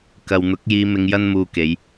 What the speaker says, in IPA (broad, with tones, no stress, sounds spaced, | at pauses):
k ɐ˨ w n̪ ʊ˨˥ k̚ j iː˧ m ɪ˧ ŋ j ɐ˥ n m uː˧ k e˨˧ j